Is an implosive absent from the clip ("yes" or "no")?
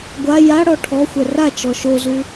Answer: yes